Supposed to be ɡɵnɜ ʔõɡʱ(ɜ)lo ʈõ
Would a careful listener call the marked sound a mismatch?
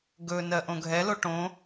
yes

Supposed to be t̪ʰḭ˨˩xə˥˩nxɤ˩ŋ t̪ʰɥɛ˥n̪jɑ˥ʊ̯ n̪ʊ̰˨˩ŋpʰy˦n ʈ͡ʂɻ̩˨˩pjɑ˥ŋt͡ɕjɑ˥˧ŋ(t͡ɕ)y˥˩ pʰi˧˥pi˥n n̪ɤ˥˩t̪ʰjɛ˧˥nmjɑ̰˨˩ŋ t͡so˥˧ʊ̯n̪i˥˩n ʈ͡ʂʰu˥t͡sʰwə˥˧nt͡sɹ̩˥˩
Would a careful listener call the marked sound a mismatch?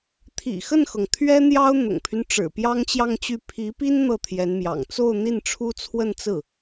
no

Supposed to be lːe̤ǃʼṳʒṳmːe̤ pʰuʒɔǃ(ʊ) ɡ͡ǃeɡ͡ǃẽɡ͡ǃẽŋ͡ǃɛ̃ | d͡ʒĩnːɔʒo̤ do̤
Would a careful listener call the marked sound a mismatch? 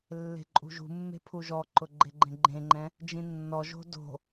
no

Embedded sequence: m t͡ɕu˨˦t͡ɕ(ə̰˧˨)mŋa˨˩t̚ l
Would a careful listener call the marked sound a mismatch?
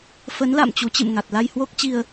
yes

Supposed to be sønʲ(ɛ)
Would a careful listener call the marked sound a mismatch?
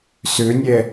no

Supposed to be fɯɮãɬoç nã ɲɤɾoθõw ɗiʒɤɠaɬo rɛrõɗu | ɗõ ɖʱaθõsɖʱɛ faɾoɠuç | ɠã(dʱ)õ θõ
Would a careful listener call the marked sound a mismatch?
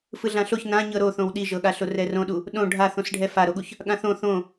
yes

